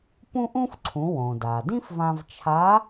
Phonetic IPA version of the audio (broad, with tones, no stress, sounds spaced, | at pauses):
p ũ˥ ʔ ũ˥ f ǀʰ ũ˩˧ w õ˩ d a˩ d ĩ˥ f v ã˧ v t͡ʃʰ a˧˥